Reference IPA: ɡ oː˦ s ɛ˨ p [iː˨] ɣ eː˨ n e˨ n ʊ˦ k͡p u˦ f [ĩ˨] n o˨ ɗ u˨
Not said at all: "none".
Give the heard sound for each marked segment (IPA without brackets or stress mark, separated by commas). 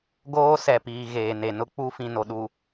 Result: iː˨, ĩ˨